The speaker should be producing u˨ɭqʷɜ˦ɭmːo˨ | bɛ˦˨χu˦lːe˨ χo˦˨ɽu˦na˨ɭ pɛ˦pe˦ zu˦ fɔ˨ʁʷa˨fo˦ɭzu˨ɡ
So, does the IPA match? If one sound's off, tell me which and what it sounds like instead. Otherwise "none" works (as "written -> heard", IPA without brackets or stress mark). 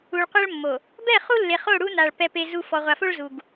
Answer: none